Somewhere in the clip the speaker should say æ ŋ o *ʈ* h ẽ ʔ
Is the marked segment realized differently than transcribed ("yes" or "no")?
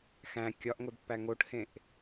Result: no